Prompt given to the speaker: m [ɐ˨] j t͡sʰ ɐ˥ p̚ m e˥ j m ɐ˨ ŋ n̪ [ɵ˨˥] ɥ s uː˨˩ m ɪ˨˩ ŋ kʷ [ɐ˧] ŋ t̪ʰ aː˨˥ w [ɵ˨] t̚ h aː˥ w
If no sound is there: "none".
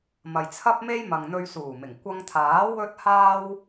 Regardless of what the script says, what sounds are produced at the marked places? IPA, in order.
ɐ˨, ɵ˧, ɐ˧, ɵ˥

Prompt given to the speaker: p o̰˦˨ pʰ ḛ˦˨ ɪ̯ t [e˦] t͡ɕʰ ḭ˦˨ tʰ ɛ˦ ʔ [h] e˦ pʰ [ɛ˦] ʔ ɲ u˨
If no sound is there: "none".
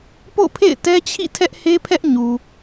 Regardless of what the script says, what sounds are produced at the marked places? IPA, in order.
ɛ˦, h, ɛ˦

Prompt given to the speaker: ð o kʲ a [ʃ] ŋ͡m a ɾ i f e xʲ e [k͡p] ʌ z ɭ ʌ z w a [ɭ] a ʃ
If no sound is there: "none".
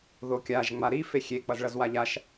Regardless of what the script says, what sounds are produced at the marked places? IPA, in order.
ʒ, k͡p, ʎ

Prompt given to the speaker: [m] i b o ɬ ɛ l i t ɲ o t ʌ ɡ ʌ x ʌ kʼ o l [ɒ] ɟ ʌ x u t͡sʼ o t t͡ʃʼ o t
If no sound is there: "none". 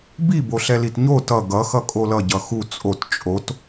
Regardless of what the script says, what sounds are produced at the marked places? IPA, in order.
b, ʌ

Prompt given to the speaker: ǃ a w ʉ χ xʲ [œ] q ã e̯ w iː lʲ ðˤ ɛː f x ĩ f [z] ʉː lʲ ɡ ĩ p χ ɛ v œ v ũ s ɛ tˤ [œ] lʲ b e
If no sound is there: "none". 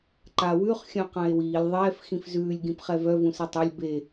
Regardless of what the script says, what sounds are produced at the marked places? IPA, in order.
œ̃, z, œ

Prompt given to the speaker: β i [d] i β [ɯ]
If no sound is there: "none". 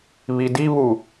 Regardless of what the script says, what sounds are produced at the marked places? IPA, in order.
d, u

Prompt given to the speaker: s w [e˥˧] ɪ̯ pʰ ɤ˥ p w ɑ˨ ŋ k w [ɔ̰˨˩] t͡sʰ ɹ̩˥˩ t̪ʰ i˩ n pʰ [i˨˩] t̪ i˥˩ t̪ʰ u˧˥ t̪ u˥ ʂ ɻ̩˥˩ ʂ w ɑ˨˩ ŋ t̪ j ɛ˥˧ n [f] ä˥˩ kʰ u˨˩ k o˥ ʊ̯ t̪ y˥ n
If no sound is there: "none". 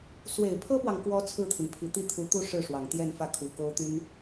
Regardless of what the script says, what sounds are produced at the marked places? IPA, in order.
e˨˩, ɔ˧˥, i˨˩, f

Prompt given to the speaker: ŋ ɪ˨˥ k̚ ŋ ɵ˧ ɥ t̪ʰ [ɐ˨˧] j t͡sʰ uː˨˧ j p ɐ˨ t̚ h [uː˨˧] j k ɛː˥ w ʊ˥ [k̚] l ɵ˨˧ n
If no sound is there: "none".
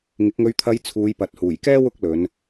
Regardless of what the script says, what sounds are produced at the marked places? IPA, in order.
ɐ˨˧, uː˨˩, k̚

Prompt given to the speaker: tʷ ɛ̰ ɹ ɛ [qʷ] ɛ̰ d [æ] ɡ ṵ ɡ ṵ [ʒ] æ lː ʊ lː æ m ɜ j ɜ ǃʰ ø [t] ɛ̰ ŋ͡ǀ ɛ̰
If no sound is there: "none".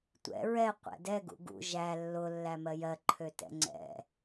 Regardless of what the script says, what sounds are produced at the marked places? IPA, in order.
qʷ, ɛ, ʒ, t

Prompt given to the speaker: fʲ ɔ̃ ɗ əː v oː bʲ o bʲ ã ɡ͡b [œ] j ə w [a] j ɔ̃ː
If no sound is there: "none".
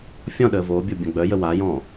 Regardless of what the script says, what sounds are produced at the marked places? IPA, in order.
œ, a

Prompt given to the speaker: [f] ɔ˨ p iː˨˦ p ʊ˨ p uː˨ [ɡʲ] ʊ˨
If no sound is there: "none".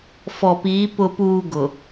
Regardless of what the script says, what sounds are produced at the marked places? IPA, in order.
f, ɡ

